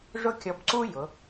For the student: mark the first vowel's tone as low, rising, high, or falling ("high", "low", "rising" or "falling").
high